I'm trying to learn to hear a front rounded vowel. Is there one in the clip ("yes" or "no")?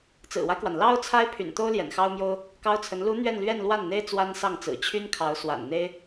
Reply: yes